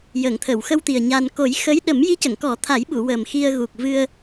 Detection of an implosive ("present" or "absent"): present